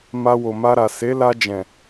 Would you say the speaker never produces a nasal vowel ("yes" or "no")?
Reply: no